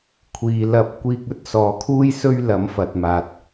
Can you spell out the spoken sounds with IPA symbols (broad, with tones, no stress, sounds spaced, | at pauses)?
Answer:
kʷʰ iː˨ l ɐ˧ p̚ kʷ iː˧ k̚ ɵ˥ t̚ s ɔː˨ kʰ uː˥ j s ɵ˥ ɥ l ɐ˨˥ m f ɐ˨ t̚ m aː˨ t̚